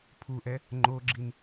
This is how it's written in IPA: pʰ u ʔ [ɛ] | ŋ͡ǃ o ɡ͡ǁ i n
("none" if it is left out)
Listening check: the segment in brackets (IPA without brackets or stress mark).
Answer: ɛ